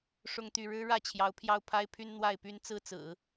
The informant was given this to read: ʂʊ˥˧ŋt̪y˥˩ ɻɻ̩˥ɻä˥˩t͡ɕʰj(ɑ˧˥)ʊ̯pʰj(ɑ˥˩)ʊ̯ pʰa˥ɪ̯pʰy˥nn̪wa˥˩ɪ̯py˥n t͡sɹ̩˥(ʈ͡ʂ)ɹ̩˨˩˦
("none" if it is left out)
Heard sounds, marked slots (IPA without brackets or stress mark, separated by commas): ɑ˧˥, ɑ˥˩, t͡s